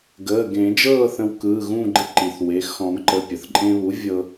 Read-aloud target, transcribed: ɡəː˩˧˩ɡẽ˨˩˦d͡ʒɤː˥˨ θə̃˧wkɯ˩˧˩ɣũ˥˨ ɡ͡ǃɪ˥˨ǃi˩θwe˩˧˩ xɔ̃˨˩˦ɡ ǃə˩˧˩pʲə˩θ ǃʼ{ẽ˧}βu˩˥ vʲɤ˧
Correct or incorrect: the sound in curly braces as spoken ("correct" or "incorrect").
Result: correct